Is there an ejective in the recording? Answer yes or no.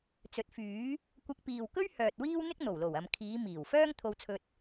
no